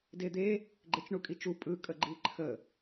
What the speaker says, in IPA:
ded̪e | ɡ͡ǃet͡ʃɳukʼit͡ʃu pʼɯ kʼəɡ͡ǃiǃʰə

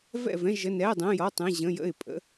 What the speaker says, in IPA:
vɛ̰˥˨vɛ̃˧˥˧ ʒə˧˥˧ nɛː˧˥˧dˤə̃ː˧˥˧jɔ˧˥˧ tˤɛ̃˧˥˧ʑə̃˧˥˧ jə̰˥˨ɪ̯pʼə̰˧˥˧

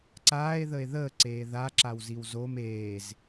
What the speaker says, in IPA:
ǀaːe̯ðəe̯ ðəːǀeː ðaǁawziw zom eːz

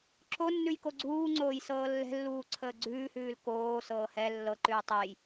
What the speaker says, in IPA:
ǁonːʉj koɡ͡ǀuːŋ͡ǀoːj sɤːlːɛ̤lːuː ǀʰəːɡ͡ǀʉːhʉːl koːsɤː hɛ lːɤǃʉː tˤɛj

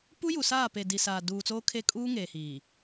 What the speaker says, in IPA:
pu˦ju˨ saː˦˨pe˨ di˨saː˨ duː˨t͡soː˦kʰe˦ kʼuː˦ŋeː˨hiː˨

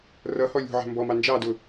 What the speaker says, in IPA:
rʌhɔ lʲṳʕæ̤ mbɔmɑ nd͡ʒɑdʊ

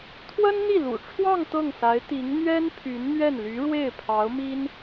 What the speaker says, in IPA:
t̪ʰwə˥nn̪i˥˩lṵ˨˩ʈ͡ʂʰwɑ˥˧ŋ t̪ɤ˥˩ŋsa˧˥ɪ̯t̪i˧˥ŋ n̪ɥɛ˥n pʰy˧˥nn̪ɥɛ˥˩nly˧˥ ɻwe˥˩ɪ̯pʰɑ˧˥ʊ̯mi˥n

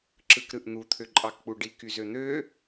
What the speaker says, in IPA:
ǁɯkɾɯʔn̪u t̪ʰøǃʼɑkk͡puɖi kyzøn̪ø

